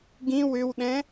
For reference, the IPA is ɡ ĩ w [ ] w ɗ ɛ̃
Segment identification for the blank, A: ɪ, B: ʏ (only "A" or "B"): B